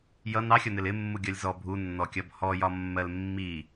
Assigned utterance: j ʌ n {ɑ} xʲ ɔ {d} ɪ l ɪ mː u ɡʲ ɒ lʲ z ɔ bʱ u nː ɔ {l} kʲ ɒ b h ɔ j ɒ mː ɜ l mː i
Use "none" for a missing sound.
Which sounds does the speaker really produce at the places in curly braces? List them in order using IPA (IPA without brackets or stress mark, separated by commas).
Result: ɑ, n, none